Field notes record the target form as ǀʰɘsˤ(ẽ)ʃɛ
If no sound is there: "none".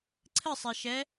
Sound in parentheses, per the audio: e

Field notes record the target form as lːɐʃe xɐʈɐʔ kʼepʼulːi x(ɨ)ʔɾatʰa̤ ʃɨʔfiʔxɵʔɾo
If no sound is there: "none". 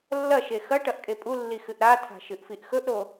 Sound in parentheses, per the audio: ɨ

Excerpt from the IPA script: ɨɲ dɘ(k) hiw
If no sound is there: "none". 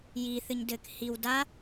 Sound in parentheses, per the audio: k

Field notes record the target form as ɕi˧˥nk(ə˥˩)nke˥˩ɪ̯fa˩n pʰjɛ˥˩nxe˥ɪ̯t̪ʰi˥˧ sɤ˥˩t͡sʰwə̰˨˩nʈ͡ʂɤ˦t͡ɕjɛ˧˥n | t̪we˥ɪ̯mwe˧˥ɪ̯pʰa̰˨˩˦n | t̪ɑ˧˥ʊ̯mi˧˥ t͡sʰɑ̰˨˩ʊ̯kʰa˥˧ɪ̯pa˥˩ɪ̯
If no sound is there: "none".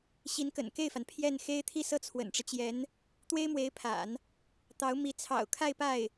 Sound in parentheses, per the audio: ə̰˨˩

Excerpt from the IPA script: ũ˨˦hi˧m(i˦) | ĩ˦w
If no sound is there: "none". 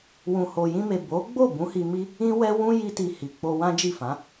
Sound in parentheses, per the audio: i˦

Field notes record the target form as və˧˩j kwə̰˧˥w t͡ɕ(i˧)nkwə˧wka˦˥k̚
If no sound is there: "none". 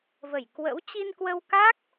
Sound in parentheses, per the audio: i˧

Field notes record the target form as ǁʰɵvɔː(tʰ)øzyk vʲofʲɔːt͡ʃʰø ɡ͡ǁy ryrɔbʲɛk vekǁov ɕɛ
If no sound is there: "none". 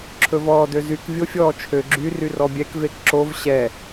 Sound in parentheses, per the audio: d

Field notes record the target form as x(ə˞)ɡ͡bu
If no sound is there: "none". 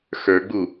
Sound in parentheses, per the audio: ə˞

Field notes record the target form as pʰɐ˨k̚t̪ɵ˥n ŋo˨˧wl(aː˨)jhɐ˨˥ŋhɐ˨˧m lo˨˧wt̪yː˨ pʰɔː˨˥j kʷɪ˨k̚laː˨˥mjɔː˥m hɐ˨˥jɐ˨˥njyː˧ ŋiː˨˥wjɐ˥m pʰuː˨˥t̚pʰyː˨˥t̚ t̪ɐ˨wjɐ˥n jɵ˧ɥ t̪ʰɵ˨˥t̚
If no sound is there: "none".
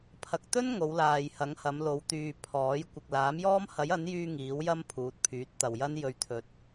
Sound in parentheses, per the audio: aː˨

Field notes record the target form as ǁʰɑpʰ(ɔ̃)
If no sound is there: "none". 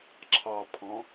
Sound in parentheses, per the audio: ɔ̃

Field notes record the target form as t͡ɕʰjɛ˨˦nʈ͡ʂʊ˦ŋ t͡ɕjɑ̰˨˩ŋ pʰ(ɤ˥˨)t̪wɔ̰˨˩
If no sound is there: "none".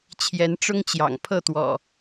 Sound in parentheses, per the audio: ɤ˥˨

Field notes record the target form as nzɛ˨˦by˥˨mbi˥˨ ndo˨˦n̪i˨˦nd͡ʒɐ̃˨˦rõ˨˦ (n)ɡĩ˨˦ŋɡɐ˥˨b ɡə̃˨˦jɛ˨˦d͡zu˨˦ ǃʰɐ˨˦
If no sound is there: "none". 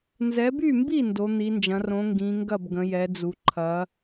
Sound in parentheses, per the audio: ŋ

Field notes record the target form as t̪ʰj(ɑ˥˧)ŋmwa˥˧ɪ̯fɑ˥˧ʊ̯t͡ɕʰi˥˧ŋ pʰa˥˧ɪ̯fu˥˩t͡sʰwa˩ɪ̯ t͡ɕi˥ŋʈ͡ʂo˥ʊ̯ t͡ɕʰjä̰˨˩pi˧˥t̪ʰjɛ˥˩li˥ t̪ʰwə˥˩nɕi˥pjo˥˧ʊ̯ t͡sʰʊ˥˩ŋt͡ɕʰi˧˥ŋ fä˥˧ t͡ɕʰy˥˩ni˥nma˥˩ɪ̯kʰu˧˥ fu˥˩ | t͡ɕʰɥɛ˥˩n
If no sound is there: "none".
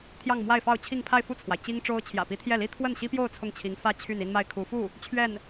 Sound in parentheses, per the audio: ɑ˥˧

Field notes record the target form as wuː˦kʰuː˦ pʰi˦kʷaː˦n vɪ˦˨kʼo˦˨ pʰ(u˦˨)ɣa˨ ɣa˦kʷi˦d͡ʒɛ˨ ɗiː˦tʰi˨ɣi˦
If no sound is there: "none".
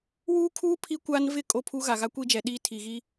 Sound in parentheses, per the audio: u˦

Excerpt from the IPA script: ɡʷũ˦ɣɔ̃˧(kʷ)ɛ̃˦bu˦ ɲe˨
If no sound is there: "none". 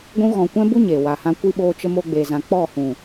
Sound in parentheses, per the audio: kʷ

